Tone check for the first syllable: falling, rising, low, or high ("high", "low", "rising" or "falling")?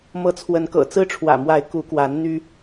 rising